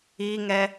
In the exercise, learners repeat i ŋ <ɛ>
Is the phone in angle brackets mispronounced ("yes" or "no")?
no